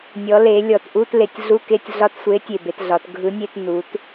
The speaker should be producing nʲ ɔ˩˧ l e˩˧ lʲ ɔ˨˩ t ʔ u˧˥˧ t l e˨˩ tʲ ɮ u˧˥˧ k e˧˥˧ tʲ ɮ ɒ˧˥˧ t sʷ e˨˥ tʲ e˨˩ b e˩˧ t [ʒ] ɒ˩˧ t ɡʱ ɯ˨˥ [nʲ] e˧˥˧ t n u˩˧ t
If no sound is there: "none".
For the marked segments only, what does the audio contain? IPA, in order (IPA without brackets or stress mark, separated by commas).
ɮ, nʲ